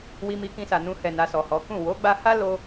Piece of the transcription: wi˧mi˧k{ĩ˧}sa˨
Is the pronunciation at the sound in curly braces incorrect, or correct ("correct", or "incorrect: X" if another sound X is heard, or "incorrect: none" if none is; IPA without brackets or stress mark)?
correct